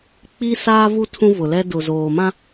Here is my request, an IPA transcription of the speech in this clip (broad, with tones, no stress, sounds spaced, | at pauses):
k͡p i˦ s aː˦ v u˦ tʰ ũ˦ v ʊ˨ l ɛ˦ d ʊ˨ z oː˨ m ã˦